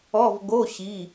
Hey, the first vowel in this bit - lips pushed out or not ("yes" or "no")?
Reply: yes